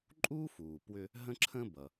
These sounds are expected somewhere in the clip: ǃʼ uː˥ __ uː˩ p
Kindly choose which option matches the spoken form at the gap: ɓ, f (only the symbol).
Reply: f